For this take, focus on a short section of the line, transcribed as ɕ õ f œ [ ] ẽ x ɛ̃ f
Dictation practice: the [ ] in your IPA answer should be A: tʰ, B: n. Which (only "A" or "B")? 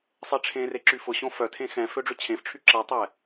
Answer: A